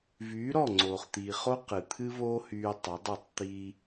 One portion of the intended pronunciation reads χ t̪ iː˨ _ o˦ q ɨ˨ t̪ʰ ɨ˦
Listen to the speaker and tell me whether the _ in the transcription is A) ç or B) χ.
B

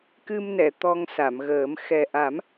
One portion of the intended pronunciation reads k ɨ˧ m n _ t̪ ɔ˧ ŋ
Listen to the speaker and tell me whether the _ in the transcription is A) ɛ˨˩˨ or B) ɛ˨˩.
A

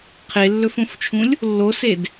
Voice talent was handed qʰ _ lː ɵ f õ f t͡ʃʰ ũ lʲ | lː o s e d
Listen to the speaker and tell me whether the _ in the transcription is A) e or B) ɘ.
A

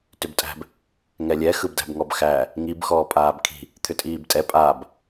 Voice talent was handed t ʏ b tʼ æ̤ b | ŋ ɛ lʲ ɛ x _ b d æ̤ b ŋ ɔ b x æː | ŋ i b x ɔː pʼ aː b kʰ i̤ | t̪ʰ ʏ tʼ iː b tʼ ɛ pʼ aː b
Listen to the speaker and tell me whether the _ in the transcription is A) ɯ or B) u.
A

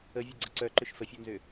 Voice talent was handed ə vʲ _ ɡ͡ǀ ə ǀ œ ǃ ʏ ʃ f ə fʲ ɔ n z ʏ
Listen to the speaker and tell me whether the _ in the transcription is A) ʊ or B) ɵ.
A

